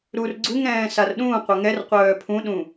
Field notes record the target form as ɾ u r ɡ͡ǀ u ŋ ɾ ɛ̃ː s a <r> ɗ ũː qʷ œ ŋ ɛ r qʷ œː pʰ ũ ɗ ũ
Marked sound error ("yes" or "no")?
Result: no